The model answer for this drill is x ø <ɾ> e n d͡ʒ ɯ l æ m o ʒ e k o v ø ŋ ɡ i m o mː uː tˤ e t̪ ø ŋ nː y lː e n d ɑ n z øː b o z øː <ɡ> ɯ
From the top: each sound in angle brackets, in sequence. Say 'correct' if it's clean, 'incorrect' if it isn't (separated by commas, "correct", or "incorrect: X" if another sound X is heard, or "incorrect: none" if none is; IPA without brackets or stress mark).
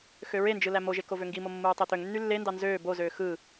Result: incorrect: ɹ, incorrect: x